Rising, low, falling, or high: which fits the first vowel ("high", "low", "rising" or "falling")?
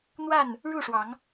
falling